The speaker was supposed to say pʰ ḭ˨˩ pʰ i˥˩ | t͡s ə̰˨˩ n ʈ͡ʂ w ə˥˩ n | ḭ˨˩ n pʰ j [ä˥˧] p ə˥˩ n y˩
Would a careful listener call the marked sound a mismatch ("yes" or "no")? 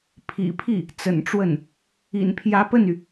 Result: yes